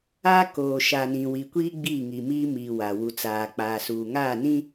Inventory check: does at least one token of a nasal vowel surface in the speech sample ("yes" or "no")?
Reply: yes